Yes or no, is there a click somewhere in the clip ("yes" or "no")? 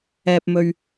no